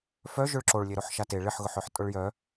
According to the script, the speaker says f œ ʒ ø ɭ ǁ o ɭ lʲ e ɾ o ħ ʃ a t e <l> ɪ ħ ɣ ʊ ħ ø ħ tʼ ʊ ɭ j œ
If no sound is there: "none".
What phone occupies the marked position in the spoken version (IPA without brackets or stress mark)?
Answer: ɭ